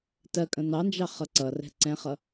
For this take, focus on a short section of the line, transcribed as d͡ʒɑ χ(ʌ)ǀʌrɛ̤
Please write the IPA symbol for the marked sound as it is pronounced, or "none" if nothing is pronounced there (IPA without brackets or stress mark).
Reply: ʌ